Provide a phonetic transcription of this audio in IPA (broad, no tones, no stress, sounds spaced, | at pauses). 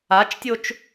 a t͡ʃ tʲ o t͡ʃ